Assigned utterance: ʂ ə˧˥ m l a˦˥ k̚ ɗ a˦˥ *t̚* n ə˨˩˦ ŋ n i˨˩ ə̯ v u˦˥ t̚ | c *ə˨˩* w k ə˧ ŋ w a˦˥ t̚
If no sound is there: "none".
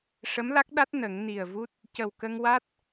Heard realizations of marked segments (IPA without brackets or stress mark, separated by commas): t̚, ə˨˩